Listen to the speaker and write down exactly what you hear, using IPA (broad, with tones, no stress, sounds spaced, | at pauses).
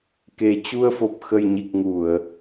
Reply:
k e˨˩ t͡ɕ u˧ ə̯ f o˨˩ p̚ x ə˨˩ j ɲ i˨˩ k̚ ŋ u˧˩˨ ə̯